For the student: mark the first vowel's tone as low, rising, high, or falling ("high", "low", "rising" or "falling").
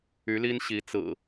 rising